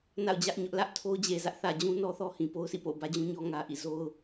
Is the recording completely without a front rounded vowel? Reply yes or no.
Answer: yes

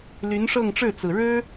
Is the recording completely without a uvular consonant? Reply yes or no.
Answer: yes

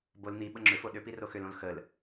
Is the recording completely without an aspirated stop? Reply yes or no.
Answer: yes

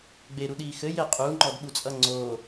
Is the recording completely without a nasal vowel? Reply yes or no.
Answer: yes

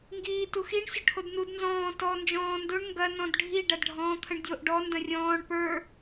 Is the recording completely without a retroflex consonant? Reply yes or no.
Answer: no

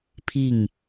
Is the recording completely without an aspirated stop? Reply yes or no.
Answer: no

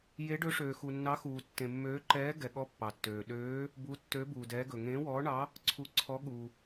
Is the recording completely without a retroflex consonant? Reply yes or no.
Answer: no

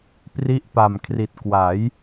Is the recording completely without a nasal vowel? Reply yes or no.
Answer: yes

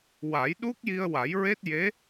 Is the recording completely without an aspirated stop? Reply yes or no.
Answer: yes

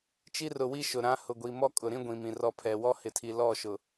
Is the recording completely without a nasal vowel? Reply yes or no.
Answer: no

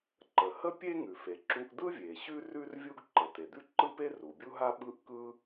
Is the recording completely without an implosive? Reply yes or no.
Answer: no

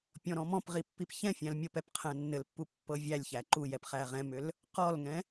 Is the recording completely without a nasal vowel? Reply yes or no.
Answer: no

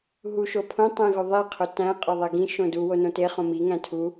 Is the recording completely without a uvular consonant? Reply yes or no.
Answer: no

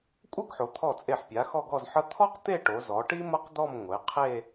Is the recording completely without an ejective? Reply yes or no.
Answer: no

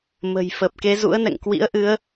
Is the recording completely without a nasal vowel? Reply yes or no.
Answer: yes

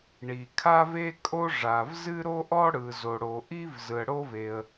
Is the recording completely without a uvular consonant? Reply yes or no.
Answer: yes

